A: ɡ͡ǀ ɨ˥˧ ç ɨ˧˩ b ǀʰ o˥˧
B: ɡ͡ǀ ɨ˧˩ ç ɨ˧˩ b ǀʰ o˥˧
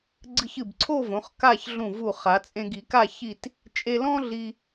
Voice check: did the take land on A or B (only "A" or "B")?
B